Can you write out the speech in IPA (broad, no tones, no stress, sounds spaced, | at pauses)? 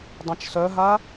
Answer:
dˤ ã t͡ʃ s œ ɦ a